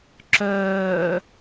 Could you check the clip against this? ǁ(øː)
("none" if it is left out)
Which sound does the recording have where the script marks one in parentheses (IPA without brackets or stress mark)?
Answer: œː